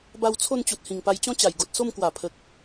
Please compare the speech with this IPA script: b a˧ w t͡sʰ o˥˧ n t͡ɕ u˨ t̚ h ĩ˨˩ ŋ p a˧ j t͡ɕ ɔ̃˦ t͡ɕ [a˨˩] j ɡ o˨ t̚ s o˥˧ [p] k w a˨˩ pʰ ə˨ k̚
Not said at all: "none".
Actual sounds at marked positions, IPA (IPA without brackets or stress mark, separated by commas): a˨˩, m